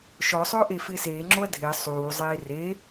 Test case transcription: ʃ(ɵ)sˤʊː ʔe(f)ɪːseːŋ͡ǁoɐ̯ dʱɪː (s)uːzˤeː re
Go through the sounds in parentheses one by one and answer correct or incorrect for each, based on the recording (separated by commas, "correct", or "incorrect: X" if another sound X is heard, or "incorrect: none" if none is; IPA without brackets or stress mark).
incorrect: ɔ, correct, incorrect: sˤ